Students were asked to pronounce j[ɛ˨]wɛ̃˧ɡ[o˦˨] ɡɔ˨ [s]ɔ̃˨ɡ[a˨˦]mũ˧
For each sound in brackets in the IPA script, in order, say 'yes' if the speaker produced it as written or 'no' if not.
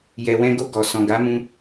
yes, no, yes, yes

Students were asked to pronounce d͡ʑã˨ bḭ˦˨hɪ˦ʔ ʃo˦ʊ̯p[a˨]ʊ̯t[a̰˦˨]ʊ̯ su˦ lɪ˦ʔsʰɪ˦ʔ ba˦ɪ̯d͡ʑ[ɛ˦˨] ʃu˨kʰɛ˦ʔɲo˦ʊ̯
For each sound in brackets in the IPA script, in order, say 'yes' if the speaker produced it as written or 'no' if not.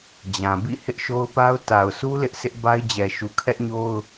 no, no, no

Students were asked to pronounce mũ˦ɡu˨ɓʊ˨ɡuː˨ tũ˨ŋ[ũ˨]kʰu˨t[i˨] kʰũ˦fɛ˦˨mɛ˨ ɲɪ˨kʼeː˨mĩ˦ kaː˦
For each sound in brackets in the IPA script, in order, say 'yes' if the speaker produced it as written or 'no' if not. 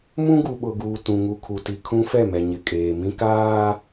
no, yes

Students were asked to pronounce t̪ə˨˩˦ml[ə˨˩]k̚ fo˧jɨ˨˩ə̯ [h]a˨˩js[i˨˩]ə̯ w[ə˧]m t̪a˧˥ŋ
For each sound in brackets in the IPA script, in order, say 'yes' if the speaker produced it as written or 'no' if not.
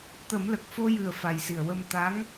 yes, no, yes, yes

